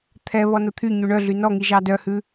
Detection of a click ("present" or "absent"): absent